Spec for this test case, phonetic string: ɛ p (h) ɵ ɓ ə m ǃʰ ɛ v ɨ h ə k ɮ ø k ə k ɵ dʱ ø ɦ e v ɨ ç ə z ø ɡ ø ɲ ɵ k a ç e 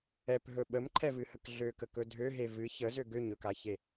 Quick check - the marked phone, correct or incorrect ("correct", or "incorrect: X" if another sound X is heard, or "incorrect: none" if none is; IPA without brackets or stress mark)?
incorrect: ɦ